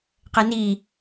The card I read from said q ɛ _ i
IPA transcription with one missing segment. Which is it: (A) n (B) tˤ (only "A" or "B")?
A